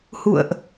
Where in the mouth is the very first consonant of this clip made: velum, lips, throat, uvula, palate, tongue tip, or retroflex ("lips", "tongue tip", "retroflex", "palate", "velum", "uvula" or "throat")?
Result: throat